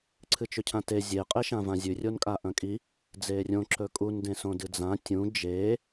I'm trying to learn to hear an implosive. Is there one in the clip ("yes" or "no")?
no